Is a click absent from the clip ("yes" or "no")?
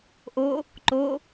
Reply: no